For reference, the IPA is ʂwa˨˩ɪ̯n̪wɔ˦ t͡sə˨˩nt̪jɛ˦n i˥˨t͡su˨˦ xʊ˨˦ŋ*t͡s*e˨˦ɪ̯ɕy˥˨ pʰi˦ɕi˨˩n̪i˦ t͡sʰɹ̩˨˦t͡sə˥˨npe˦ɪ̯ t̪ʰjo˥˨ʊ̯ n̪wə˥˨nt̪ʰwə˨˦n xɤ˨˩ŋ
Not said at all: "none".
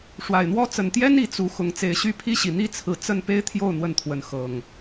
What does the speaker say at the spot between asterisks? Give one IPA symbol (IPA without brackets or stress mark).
t͡s